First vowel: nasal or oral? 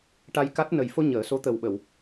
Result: oral